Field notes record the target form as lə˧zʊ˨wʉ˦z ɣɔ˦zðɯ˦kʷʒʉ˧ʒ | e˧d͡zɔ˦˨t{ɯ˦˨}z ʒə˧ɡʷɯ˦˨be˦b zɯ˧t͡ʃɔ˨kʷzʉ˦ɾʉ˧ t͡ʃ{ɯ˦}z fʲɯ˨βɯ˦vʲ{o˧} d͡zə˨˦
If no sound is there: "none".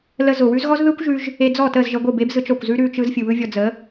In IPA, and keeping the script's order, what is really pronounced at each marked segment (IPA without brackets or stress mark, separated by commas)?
ə˦˨, ɯ˦, ɔ˧